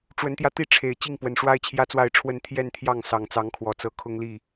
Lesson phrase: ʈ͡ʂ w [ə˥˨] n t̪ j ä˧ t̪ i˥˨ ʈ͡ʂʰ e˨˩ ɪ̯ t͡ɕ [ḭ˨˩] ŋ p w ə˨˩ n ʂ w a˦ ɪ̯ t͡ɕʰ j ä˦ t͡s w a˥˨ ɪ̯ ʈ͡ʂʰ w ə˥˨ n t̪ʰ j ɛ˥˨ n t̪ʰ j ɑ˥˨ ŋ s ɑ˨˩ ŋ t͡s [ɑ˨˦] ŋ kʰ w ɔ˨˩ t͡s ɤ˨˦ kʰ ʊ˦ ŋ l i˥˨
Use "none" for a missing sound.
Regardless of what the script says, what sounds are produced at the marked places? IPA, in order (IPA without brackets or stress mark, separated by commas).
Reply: ə˨˦, i˥˨, ɑ˨˦